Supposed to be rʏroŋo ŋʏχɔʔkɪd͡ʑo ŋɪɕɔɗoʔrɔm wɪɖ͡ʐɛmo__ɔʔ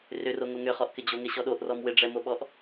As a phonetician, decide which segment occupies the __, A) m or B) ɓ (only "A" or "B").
B